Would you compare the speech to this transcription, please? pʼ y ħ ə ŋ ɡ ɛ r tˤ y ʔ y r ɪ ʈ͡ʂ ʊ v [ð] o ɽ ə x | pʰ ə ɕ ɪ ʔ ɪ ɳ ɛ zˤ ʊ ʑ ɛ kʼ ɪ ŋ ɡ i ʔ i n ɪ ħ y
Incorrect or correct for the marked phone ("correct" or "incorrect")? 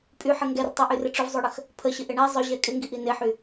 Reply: incorrect